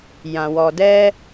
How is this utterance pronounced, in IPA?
jã˨wɔ˨ dɛ˧

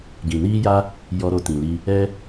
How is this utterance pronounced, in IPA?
ɡĩ˨niː˦ja˦ | jɔ˧ ɾo˧tĩ˨ li˧ | ɛ˦

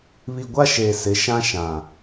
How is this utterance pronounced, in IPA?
βi˨ɡʷa˦ ʃeː˨sɪ˨˦ʃã˦ ʃã˨

